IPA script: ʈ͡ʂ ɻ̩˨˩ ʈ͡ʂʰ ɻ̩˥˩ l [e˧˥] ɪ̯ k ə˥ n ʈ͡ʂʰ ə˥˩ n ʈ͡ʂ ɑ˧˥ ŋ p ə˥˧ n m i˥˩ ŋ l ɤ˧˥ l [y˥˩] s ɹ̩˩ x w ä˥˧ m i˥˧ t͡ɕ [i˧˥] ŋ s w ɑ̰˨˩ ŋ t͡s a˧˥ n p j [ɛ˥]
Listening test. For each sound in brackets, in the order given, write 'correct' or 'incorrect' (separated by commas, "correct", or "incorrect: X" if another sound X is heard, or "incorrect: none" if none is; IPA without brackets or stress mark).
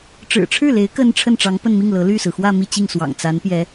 correct, correct, incorrect: i˥˩, incorrect: ɛ˧˥